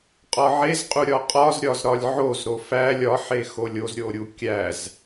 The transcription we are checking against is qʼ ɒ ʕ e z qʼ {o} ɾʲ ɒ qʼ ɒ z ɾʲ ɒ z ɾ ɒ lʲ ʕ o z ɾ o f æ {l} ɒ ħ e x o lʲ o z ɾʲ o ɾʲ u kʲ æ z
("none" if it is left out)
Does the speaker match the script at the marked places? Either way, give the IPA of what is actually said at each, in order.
u, lʲ

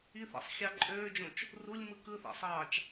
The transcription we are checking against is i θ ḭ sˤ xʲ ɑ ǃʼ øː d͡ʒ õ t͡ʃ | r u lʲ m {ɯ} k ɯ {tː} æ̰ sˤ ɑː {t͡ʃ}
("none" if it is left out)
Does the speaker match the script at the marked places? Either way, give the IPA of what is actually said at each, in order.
ɯ, θ, t͡ʃ

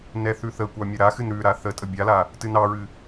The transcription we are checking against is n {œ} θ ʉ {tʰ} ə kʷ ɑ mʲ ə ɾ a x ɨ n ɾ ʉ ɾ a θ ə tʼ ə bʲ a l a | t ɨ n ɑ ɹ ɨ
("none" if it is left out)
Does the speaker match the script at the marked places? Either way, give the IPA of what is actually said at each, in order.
ɛ, θ

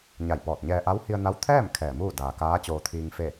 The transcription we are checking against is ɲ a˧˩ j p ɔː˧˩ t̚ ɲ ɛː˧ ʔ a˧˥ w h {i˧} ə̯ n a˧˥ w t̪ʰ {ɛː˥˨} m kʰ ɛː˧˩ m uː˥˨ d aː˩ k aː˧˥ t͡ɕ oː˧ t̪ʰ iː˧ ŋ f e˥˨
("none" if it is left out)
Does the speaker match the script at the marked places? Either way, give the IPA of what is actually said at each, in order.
i˧, ɛː˥˨

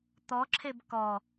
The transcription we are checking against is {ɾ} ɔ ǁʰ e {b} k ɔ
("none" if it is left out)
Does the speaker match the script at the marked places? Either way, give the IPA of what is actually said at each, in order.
t̪, b

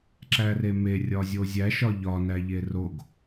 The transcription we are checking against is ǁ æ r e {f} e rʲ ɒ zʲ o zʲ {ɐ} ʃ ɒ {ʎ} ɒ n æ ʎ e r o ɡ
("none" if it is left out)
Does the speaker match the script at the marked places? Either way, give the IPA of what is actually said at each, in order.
m, æ, ʎ

